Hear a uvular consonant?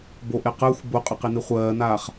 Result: yes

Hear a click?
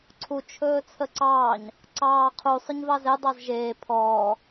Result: yes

